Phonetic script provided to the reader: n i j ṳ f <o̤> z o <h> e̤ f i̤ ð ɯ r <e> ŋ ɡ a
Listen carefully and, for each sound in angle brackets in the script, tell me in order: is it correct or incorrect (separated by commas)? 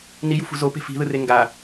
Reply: incorrect, incorrect, correct